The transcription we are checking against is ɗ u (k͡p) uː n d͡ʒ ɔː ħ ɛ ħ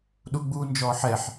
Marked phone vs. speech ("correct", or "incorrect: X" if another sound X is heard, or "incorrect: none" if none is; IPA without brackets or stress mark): incorrect: ɡ͡b